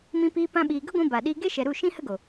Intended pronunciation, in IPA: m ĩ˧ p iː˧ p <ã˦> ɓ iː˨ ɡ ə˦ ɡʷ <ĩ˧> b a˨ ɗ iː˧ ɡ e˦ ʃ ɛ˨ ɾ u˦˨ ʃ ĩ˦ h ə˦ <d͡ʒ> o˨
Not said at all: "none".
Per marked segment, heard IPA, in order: ã˧, ĩ˧, ɡ

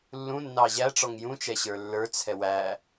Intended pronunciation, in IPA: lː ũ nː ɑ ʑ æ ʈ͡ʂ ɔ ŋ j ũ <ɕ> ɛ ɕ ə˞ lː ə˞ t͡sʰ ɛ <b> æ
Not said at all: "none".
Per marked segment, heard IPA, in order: t͡ʃ, w

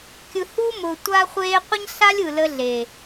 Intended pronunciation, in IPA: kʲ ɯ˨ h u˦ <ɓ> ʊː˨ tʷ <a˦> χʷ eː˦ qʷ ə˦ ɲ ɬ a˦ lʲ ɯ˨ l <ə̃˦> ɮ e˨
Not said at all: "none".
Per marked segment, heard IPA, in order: m, a˦, ə˦

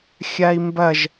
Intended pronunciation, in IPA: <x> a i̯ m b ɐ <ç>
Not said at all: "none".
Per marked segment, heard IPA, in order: xʲ, ʒ

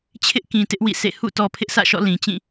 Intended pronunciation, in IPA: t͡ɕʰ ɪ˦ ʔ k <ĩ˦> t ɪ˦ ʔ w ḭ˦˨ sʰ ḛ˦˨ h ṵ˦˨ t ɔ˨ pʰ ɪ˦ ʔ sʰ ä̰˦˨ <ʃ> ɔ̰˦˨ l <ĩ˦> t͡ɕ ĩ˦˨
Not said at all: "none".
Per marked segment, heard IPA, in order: ĩ˨, ʃ, ĩ˨

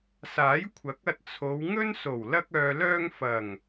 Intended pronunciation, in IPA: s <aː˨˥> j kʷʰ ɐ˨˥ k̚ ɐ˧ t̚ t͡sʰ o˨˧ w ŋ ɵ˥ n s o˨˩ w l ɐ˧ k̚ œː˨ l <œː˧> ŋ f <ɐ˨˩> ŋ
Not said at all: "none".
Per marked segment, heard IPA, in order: aː˨˥, œː˧, ɐ˨˩

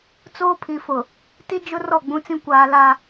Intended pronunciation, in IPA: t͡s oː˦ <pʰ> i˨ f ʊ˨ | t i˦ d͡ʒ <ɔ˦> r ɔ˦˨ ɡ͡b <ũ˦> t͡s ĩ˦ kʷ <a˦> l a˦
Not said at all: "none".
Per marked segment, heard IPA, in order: pʰ, ʊ˦, ũ˦, aː˦

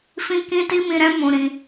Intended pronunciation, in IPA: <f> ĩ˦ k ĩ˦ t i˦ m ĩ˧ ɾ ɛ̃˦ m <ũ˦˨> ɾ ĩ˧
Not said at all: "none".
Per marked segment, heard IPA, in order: f, ũ˧

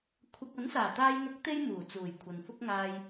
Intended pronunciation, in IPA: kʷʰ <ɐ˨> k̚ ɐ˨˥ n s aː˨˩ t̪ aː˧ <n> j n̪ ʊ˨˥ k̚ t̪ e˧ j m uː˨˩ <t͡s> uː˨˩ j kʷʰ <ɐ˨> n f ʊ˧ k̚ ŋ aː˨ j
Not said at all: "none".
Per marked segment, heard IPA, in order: ɐ˧, none, t͡s, ɐ˨

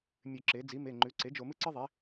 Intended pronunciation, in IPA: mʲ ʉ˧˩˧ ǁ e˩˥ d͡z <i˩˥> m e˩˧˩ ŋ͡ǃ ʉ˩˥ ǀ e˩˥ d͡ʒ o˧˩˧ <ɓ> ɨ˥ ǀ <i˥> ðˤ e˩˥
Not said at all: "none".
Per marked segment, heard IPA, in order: i˩˥, m, ɨ˥

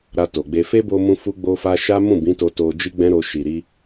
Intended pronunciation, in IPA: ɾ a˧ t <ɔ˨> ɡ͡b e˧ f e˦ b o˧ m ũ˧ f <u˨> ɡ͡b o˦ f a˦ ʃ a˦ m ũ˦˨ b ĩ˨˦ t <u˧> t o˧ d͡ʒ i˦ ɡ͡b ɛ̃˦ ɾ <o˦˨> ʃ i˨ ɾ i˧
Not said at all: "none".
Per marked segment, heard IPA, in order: o˨, u˦, o˧, o˧

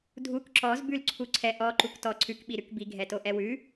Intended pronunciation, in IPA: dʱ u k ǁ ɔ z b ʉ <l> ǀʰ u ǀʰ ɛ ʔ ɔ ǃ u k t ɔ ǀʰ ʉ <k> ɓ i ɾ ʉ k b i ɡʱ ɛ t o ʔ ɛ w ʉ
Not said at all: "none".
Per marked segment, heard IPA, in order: l, k

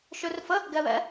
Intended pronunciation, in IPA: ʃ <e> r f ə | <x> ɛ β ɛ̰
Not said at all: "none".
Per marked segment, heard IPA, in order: ø, ɡ

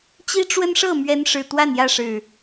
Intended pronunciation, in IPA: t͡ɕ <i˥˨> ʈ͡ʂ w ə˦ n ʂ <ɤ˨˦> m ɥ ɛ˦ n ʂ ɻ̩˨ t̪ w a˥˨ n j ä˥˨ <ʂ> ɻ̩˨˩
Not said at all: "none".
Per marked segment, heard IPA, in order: i˦, ɤ˥˨, ʂ

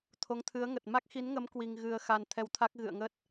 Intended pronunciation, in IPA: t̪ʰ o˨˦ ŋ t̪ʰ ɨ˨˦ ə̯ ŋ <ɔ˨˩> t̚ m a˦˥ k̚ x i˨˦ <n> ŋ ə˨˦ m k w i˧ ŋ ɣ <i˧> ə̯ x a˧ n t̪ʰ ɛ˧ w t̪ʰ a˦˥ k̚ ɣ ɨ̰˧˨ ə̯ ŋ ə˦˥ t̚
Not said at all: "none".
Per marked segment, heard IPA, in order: ə˨˩, n, ɨ˧

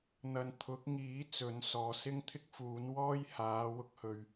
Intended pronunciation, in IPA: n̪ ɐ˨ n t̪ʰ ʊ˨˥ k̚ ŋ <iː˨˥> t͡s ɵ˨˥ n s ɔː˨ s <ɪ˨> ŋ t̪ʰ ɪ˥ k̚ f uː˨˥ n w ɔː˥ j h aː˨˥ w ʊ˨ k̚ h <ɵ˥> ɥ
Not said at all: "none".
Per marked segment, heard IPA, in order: iː˨˥, ɪ˥, ɵ˨

